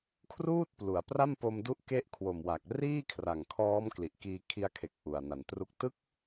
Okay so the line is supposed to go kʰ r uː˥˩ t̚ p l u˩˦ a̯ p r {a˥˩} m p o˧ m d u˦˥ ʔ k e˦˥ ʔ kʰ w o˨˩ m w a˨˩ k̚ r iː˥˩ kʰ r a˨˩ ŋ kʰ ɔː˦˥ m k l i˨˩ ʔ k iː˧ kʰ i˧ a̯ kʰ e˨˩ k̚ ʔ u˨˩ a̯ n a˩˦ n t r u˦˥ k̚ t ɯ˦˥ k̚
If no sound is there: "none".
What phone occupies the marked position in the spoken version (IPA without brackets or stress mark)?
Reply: a˥˩